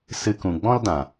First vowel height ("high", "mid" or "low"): high